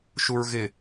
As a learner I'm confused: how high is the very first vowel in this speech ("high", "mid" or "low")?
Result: high